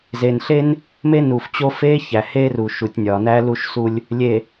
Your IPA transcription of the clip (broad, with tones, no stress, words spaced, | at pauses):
zeː˨nɬe˦n | me˦nu˨f t͡ɕo˦ feː˦ çæ˨heː˦ruː˨ ʃu˨tʲnʲɒː˨næ˦ lu˦ʃsu˦lʲ | lʲe˨